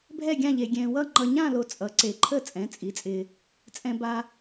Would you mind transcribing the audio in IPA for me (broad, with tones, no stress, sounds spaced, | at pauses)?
bʱ ɛ˥˧ ɡʲ ã˥˧ ʎ e˧ ɡʲ ɛ̃ː˧ w ʌ˥˧ ŋ͡ǃ ʌ˧ ɲ ã˥˧ l o˧ t͡sʼ ʌ˨˥ ǀ e˧ ǃʰ ə˥˧ t͡sʼ ɛ̃˨˥ t͡sʼ i˨˥ t͡sʼ ɪː˧ | t͡sʼ ɛ̃˧ b a˧